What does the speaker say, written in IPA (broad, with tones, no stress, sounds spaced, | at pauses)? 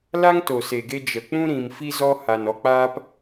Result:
l a˦ ŋ t o˨ s e˨ ɡ e˧ d͡ʒ ə˨ k͡p ũ˦ ɾ ĩ˨ m f i˧ z ɔ˧ h a˨ n ɔ˨ k͡p aː˧ p